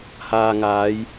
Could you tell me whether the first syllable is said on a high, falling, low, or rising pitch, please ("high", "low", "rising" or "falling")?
low